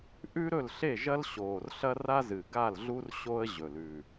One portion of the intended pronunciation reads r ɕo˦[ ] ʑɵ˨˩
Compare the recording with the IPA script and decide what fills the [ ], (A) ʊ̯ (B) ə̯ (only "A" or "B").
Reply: B